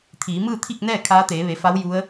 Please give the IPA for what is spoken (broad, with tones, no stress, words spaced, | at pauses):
t̪ʰiː˩˧mɯː˥˨t̪ʰi˥˨k̚nɛː˥˨ kʰaː˧˥t̪eː˩˧ʋe˩˧fa˧˥w ju˧˥ə̯